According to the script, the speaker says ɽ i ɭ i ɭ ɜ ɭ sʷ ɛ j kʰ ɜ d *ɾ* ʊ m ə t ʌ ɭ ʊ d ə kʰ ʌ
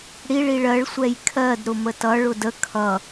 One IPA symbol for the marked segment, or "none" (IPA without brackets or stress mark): ɾ